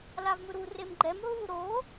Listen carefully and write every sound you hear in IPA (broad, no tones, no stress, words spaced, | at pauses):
lavmɯɾu remɡ͡ǃɛm ɦu ɾo